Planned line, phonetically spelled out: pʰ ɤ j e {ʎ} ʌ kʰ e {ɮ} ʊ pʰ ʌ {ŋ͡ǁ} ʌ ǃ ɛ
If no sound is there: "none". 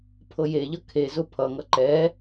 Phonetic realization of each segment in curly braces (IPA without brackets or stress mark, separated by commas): ʎ, z, ŋ